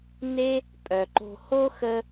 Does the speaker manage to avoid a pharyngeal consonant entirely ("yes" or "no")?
yes